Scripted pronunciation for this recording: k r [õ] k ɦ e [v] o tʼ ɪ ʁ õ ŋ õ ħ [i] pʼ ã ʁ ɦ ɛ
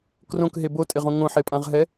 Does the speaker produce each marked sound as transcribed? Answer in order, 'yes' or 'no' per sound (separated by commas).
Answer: yes, no, no